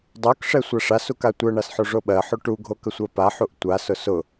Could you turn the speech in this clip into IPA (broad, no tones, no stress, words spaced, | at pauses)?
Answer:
dˤokʂɛ sʷaʂasuk atʷɜɳas ħoʐoɓɜħo ʈuɡʱo kəsʷɜpaħuʔ tʷasʊ sʊ